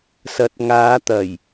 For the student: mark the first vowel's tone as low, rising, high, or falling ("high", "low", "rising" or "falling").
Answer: rising